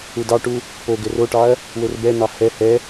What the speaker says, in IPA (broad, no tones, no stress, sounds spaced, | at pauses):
u d ɑ ʈ u | p o ɡ ɘ r o ʈ ɑ ɐ̯ | w ɘ r b ɛ n̪ ɑ h ɛ h ɛ